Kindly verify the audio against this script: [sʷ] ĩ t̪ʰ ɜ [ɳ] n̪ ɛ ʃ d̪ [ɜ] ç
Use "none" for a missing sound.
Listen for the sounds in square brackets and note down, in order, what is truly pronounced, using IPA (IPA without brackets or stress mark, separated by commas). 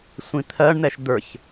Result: sʷ, ɳ, ə˞